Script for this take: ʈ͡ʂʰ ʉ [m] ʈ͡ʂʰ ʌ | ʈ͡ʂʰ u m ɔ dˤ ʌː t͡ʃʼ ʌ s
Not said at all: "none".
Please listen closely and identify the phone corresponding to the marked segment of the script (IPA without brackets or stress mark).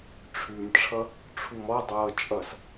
m